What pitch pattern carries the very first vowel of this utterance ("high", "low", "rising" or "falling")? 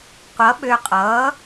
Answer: rising